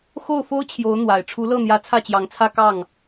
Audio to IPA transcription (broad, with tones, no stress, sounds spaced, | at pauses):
x o˥˩ ʊ̯ f o˥ ʊ̯ t͡ɕʰ j o˧˥ ʊ̯ n̪ w a˨˩ ɪ̯ ʈ͡ʂʰ u˧˥ l ɤ˥˩ n̪ j ä˧˥ t͡sʰ ä˥˩ t͡ɕ j ɑ˧˥ ŋ t͡sʰ ä˥˧ k ɑ˥˩ ŋ